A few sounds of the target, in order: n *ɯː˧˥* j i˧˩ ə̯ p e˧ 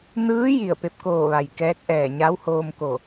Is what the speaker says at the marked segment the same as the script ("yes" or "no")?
yes